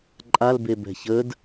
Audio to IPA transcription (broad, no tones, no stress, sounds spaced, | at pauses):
ǃʼ a l b e b ɛ̤ ç ə d